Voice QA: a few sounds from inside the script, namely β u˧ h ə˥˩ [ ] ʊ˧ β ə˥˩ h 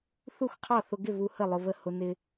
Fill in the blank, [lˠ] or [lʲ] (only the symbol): lˠ